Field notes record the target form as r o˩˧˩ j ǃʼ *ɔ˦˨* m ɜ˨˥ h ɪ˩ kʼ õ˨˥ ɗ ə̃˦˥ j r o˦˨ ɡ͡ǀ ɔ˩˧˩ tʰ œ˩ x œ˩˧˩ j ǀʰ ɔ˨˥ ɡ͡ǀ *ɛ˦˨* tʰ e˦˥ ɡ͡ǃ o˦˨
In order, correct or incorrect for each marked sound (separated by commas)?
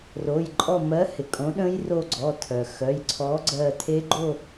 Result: correct, incorrect